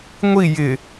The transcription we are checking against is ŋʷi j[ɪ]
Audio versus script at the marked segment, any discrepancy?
no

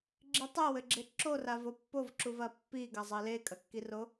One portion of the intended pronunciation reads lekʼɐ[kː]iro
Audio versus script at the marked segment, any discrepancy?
no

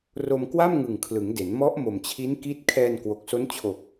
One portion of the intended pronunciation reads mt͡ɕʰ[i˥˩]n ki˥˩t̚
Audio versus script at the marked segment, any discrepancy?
yes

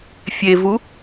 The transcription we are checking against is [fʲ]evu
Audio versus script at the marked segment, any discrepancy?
no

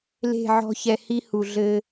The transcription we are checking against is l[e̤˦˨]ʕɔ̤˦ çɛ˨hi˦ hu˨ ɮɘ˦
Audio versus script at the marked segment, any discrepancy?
no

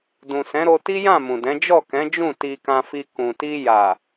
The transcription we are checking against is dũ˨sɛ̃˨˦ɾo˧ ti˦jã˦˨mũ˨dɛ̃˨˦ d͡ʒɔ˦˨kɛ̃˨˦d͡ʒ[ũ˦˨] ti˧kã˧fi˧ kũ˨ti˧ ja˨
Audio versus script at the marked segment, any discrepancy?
no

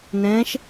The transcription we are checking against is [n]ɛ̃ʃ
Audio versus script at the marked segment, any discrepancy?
no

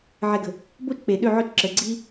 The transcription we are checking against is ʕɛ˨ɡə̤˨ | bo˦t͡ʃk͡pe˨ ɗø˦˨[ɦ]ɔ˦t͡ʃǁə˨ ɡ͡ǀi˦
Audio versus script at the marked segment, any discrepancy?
yes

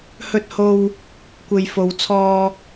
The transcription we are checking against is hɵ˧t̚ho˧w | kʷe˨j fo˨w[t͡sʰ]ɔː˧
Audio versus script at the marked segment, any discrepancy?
no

